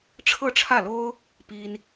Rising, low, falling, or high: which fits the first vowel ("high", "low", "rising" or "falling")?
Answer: falling